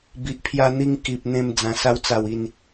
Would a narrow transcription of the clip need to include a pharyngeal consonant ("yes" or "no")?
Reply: no